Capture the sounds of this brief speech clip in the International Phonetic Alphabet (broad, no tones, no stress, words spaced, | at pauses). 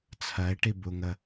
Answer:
t͡sʰɜe̯ʈi buŋə